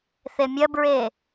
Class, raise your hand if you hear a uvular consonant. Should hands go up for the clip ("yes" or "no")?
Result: no